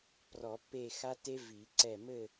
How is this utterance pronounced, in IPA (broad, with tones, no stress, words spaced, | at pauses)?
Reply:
prɔ˨˩˦pːe˦˨xa˦˥te˦˥ vi˨˩˦ǀɛ˦˨ mɘ˦˨